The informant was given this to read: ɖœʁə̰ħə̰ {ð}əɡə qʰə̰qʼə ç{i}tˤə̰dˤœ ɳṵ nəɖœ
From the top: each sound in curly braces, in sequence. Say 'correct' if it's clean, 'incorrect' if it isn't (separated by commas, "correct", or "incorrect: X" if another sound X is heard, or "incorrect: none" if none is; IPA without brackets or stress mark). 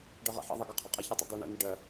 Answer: incorrect: ðˤ, correct